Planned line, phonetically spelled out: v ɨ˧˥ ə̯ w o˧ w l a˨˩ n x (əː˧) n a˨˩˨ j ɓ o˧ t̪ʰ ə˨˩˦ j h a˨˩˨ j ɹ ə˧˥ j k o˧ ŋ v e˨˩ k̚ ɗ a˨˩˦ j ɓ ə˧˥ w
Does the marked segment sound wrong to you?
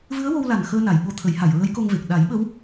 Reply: no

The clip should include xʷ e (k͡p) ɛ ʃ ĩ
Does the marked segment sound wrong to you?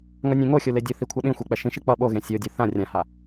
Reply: no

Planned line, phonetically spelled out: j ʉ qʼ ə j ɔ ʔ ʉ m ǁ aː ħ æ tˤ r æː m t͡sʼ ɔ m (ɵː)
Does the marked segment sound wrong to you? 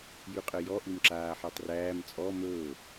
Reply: no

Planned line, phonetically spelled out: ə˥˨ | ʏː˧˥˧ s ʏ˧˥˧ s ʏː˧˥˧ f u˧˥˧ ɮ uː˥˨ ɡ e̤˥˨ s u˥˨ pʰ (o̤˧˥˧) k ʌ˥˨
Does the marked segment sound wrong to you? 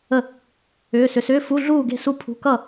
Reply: yes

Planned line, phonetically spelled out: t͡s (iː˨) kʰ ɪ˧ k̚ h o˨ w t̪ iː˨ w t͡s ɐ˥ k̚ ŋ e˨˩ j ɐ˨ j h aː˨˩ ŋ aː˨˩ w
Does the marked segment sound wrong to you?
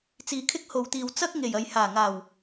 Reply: no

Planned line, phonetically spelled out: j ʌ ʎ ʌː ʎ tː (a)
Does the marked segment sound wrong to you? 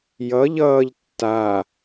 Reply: no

